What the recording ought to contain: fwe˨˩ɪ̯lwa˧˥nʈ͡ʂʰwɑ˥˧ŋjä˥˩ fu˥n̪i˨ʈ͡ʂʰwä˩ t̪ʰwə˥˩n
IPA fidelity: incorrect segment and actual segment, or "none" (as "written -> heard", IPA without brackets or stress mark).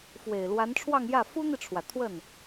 none